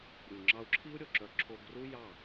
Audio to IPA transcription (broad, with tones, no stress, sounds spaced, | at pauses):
ɾʲ u˨ ŋ͡ǁ ɑ˧ u̯ ǁʰ i˦ u̯ ɾʲ o˨ ǁ œ˧ ǁʰ o˧ ɡ r u˦ j ɑ˦˨